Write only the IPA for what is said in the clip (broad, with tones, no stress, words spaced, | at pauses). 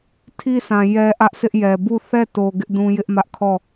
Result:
tʰi˦sã˨ jɛ˦ʔä˦ʔsɪ˦ʔjɛ˨ bu˦˨ θɛ˦˨to˨ ɡɪ˦ʔdũ˦ jɪ˦ʔmä˦ʔ kʰɔ˦˨